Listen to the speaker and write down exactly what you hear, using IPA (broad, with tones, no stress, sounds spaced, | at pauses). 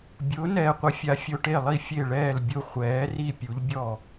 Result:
bʲ ʊː˩˥ n ɛː˨ qʷ ɪ˩˥ fʲ a˩˥ fʲ o˨ ʈ e˥˩ lˠ i˥˩ fʲ e˥˩ ɭ ɛː˥˩ l bʲ ʊ˥˧ χʷ ɛː˩˥ r i˥˧ pʲ u˩˥ ʎ bʲ ɔ˥˩